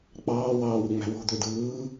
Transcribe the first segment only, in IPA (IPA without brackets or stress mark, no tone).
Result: k͡p